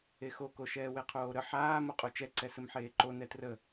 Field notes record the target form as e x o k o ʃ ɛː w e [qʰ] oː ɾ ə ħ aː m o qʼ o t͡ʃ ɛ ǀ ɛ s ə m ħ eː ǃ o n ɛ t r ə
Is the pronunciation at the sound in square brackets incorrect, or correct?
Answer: correct